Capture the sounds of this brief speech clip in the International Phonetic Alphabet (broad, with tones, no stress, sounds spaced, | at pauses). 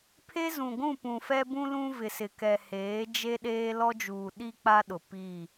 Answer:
pʰ e˦ z ũ˨ ɡʷ ũ˦˨ p ũ˨ f ɛ˦ b ũ˦ l ũ˦ v ɪ˨ s ɪ˨ k ɛ˨ h eː˨˦ d͡ʒ e˦ ɗ eː˦ l ɔ˦ d͡ʒ uː˨ ɗ i˦ k͡p a˦ ɗ ʊ˨ p i˦˨